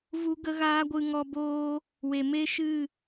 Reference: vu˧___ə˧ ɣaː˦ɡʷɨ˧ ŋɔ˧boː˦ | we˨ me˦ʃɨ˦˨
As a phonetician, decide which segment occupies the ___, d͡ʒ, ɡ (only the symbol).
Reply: ɡ